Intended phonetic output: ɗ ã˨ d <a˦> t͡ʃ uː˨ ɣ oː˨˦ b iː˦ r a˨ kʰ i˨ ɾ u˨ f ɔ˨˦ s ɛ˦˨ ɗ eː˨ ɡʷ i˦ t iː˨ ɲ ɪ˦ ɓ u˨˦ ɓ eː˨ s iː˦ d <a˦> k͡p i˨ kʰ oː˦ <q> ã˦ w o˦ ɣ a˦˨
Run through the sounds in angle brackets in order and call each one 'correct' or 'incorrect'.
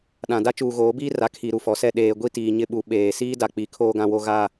correct, incorrect: a˨, incorrect: ɡ

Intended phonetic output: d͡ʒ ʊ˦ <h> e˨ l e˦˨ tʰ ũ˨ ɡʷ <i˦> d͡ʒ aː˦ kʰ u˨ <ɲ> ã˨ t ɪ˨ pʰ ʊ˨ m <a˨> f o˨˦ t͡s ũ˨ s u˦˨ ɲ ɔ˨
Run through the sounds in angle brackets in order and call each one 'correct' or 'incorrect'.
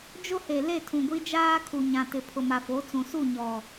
correct, correct, correct, correct

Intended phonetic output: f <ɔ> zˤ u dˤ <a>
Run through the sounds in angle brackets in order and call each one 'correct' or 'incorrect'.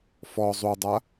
correct, correct

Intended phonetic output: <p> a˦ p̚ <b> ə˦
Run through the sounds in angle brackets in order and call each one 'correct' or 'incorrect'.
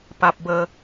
correct, correct

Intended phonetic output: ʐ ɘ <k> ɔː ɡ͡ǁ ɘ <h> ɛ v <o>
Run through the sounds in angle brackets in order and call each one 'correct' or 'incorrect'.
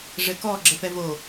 correct, incorrect: f, correct

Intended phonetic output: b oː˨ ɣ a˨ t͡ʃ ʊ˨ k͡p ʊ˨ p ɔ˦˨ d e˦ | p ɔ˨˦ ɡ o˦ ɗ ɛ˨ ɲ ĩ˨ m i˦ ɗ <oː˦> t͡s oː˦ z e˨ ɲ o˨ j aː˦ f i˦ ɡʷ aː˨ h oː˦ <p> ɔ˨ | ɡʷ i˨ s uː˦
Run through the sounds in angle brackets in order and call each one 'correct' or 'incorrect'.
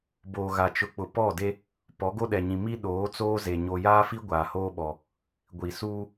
incorrect: oː˨˦, incorrect: ɓ

